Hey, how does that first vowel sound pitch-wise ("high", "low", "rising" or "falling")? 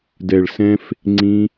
low